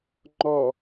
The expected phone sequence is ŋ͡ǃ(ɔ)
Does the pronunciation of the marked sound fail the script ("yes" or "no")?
no